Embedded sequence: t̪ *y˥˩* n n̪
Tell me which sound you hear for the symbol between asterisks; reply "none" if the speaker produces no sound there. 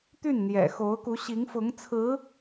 y˥˩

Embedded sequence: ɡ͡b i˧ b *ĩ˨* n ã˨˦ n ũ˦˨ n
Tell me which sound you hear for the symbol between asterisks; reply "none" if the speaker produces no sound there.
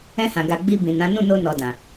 ĩ˨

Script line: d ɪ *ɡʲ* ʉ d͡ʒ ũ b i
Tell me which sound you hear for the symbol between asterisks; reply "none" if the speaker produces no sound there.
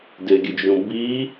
ɡʲ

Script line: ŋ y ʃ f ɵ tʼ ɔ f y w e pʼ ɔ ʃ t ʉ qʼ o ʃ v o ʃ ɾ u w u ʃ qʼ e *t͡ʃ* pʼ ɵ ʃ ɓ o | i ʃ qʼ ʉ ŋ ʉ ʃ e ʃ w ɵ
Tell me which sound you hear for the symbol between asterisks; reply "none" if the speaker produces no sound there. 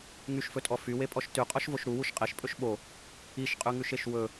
ʃ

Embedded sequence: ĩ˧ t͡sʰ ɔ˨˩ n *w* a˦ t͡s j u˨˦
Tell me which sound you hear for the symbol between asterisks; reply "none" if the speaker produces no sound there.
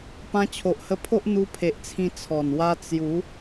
w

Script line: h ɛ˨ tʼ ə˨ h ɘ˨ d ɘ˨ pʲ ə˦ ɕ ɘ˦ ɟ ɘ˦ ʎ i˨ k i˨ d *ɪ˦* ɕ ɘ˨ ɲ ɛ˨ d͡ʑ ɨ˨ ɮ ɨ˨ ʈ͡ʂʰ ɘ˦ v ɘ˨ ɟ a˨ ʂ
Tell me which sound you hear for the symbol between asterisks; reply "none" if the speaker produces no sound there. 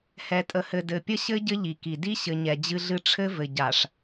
i˦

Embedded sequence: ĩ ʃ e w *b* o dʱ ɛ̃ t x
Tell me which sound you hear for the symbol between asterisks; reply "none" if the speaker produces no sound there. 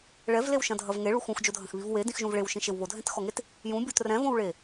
β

